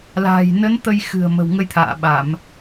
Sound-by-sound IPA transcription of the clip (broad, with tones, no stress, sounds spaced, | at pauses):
l a̤ː˨˩ j n ə˨˦ n t̪ ə˧ j x ɨ̤˨˩ ə̯ m ə̤˨˩ w ŋ ə˧ j t̪ʰ a̰ː˧˨ ɓ a˧˩˨ m